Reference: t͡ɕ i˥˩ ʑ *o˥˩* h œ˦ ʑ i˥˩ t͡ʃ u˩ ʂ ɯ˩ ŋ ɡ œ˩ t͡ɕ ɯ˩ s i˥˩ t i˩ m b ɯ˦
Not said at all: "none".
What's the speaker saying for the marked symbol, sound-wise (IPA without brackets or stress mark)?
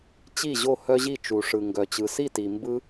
o˥˩